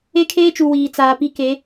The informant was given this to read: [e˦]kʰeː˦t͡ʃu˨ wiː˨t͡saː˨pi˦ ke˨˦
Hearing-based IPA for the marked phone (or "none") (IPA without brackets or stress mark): e˦